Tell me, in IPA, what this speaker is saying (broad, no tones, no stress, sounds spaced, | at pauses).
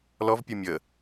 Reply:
l ɔ v pʲ o mʲ ə